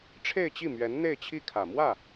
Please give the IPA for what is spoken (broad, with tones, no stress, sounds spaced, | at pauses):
ʈ͡ʂʰ e˥˧ ɪ̯ t͡ɕ i˥˩ m ɥ ɛ˧˥ n n̪ e˥˧ ɪ̯ t͡ɕʰ i˥˩ kʰ ä˨˩ m w ä˥˩